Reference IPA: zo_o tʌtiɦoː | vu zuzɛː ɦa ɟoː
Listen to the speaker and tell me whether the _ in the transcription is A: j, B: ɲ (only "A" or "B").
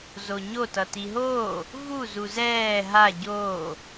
B